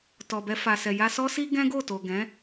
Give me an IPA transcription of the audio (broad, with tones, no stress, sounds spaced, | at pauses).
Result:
t ɔ˨ b ɛ˧ f a˨ s ɛ˨ j a˧ s ɔ˦ s i˦ ɡ ɛ̃˦ ɡ o˦˨ t o˨ ɡ ɛ̃˨˦